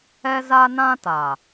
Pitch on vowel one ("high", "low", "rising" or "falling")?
high